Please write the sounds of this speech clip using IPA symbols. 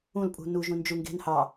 ũ l pʼ ṳ n u ʒ ũ n d͡ʒ u ŋ ɡ e̤ n h ɑ

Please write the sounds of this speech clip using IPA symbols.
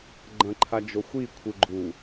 ɡ͡ǃ ɐ̃ ǃʰ a d͡ʒ o xʷ i kʷʰ ɨ ɡ͡ǃ u

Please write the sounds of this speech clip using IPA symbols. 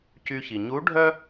c y˧ ç i˩ ɲ u˧˥ ɖʱ œ˥

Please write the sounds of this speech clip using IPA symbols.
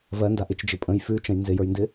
v ɜ n d a ʔ ɪ t͡ʃ d͡ʒ ɪ pʼ ə̃ j f ʉ t͡ʃ ə̃ j n z ɪ j ə˞ j n d ɪ

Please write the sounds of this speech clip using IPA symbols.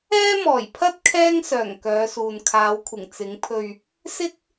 ɛː˥ m ɔː˨˩ j pʰ ɐ˥ t̚ kʰ ɛː˥ ŋ s œː˨˩ ŋ k œː˨˧ s uː˨ n kʰ aː˨˧ w kʷʰ ɪ˨˩ ŋ t͡s ɪ˨˥ ŋ pʰ ɵ˧ ɥ | s ɪ˥ k̚

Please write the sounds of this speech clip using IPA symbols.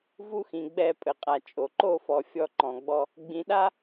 v u˦ x ĩ˨ ɡ͡b ɛ˦˨ pʼ ɘ˨ qʼ a˨ t͡ʃʼ o˨ ǃ o˦˨ f ɔ˨ fʲ ɔ˦ ǃ ɔ̃˨ ɡ͡b ɔ˦ | ɡ͡b ĩ˨˦ ɗ a˦

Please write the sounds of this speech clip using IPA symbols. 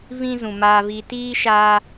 v ĩ˦ z ũ˨ m aː˧ v iː˧ t iː˦ ʃ aː˧

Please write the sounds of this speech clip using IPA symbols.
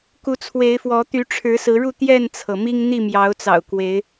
k u˨˦ t͡sʰ w e˨˦ ɪ̯ f w ɔ˨˦ t̪ y˨˦ ʈ͡ʂʰ ɻ̩˨˦ s ɹ̩˨˦ ɻ u˥˨ t̪ j ɛ˥˨ n t͡sʰ ɤ˩ m i˦ ŋ n̪ i˥˨ m j ɑ˨˦ ʊ̯ t͡s ɑ̰˨˩ ʊ̯ k w e˨˦ ɪ̯

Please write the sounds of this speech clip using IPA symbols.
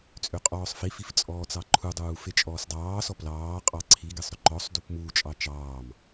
t͡sʼ ʏ qʼ ɔː sˤ f i f i f t͡sʼ ɔː t͡s ɑ ǃʰ u dˤ uː f e t͡ʃʼ ɔː s dˤ ɑː s ɔ p l ɑː qʼ ɑ ǀʰ i ɡ e sˤ ɾ ʏ ǃ ɔ sˤ d u p m uː t͡ʃʼ ɑ t͡ʃ ɑː m

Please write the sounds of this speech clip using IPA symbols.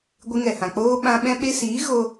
ɡʷ ɨ˧ ŋ ɛ˨ h ã˨ k͡p oː˦ ɓ ã˧ ɓ ɛ̃˦ ɓ e˧ s iː˨˦ ɣ o˦

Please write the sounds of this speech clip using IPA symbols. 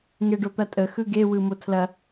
ŋ e ɖ o t̪ ɐ tʼ ə x ɯ ɡ e w ɯ m o tʰ l ɐ

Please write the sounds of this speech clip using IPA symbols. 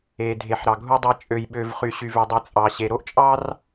e˨ dʱ e˨ ħ ɾ ɑ˨ ɡʱ u˦ dˤ æ˦ t͡ʃʼ ø˨ j ɓ ø˨ v χ y˨ ɕ y˨ v ø˨ dˤ ɯ˨ t͡sʼ ɑ˨ ɕ e˨ ɾ o˦ ʔ t͡ʃʼ ɑ˦ r

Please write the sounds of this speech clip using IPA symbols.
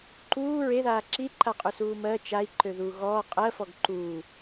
ǃ uː ɹ e ð aː ǁ i ǃ a qʼ u s uː m ɜ t͡ʃ a i̯ ǃ ø ð uː ɣ ɔː qʼ ɜ f ɔ ɡ ǃ uː

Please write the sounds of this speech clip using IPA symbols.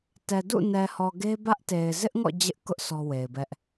t ɛ˨ d ṵ˦˨ n ɛ˨ h ɔ˨ ɡ e˦ b ä˦ ʔ t e˨ ɪ̯ z ɪ˦ ʔ ŋ ɔ̰˦˨ d͡ʑ ɪ˦ ʔ k ʊ˦ ʔ sʰ ɔ˦ w e˨ ɪ̯ b ɛ˦ ʔ

